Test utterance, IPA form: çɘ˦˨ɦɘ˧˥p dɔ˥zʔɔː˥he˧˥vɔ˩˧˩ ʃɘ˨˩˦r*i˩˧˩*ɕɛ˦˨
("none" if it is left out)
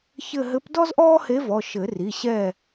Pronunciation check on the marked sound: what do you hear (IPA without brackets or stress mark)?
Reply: i˩˧˩